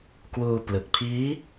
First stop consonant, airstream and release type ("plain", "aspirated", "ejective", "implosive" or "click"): plain